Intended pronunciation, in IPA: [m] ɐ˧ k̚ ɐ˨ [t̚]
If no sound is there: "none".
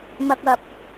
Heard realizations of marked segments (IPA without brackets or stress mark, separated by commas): m, p̚